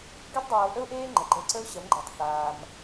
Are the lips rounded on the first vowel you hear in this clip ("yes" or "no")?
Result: no